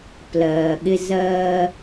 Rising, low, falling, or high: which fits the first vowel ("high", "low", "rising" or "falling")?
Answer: low